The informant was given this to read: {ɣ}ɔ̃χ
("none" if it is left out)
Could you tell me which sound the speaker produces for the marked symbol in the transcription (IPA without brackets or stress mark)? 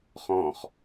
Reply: χ